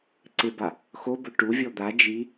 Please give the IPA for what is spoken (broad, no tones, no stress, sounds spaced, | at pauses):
ǀ ɪ b a | x o b ʊ ʈ u vʲ ɔ d̪ a d͡ʒ i